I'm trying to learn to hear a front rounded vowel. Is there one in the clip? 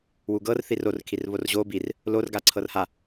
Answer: no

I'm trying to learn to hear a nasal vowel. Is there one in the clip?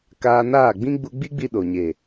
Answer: yes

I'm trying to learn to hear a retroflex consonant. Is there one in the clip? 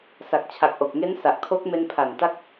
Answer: no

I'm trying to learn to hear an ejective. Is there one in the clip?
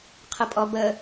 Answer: yes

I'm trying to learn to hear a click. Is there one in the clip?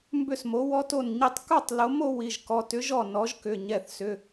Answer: no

